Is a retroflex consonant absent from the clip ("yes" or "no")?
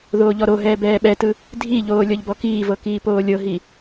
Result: yes